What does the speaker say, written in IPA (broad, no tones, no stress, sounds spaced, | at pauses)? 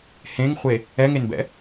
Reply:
h ẽ ŋ χʷ e | ɛ ŋ e n b ɛ̰